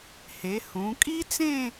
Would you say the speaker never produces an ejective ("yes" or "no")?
no